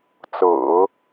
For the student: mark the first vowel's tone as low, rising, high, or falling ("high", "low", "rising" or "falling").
low